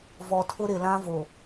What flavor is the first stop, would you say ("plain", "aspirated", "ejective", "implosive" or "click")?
aspirated